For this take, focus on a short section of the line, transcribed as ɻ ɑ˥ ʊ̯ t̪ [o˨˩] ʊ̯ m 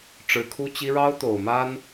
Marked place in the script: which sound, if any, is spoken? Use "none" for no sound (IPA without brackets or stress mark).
o˨˩